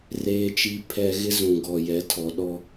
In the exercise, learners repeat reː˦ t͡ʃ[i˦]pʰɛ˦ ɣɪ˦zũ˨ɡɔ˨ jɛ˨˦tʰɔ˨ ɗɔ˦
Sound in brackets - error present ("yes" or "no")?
no